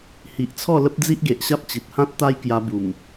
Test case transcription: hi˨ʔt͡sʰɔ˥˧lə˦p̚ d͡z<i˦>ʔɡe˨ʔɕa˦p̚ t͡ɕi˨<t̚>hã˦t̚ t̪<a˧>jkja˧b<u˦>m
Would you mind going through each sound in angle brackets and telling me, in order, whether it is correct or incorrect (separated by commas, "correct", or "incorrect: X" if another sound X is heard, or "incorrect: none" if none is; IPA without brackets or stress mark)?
correct, correct, incorrect: a˦, incorrect: u˨˩